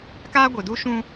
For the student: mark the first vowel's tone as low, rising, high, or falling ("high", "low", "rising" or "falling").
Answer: high